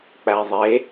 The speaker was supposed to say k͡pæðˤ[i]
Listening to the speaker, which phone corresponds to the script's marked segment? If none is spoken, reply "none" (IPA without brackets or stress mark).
e